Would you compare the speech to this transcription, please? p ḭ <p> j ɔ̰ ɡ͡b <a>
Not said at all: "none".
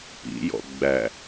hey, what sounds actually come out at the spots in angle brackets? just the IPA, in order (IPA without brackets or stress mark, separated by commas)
none, æ